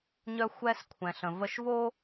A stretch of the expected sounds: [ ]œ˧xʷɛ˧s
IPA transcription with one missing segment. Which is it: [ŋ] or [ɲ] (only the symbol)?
ɲ